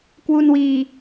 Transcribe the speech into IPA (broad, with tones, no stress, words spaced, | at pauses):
kwu˧nwiː˧